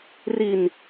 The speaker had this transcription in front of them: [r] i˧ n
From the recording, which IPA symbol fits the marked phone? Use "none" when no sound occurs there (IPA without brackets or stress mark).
r